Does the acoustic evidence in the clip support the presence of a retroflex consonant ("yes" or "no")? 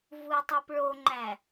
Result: yes